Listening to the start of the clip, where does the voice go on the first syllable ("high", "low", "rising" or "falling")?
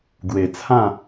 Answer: low